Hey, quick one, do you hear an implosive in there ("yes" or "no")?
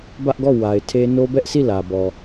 no